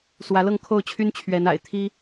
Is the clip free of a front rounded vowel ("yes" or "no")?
no